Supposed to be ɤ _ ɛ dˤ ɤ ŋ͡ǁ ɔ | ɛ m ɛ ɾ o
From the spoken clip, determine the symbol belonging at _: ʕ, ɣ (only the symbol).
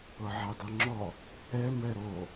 ʕ